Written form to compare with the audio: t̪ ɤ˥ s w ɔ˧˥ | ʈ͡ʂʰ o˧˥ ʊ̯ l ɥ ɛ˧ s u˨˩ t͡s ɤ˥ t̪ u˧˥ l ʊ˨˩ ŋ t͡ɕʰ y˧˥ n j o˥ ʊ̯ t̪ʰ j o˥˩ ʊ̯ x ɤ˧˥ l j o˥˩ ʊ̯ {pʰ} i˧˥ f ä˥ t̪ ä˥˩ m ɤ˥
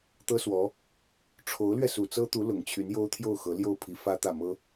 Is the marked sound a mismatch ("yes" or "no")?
no